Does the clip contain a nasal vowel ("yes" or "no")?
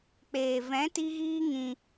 yes